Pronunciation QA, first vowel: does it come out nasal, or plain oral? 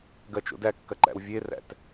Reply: oral